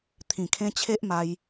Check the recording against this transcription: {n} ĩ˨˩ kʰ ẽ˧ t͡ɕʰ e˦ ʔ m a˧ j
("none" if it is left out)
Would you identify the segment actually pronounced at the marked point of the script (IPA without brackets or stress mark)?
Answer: t̪ʰ